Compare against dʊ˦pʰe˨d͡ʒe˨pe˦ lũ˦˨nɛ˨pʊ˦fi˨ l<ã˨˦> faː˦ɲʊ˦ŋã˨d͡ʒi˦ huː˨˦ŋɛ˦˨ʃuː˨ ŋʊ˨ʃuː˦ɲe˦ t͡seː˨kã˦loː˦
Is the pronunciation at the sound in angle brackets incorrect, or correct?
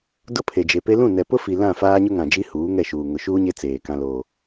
incorrect